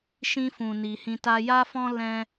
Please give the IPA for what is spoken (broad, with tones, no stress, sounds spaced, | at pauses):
ʃ ĩ˧ f ũ˨ n i˨ h ĩ˧ t a˦ j a˦ f ɔ̃˦ l ɛ̃˦